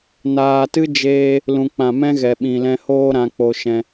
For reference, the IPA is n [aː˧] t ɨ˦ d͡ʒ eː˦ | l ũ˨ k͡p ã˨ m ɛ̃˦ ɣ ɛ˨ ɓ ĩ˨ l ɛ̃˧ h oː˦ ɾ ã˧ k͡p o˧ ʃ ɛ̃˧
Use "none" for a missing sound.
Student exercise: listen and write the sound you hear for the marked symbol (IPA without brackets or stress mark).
aː˧